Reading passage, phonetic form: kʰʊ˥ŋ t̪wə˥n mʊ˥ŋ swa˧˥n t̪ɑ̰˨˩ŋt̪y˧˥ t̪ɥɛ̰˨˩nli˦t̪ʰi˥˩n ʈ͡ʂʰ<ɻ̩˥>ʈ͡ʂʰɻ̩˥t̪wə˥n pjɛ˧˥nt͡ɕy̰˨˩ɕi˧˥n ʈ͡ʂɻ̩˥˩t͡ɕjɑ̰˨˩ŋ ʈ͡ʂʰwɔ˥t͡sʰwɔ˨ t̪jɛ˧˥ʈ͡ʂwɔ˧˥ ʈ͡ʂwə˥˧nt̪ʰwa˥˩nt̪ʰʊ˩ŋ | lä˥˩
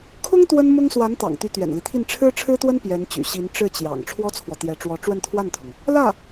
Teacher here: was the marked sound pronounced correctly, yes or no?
yes